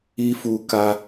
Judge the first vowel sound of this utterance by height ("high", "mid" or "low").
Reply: high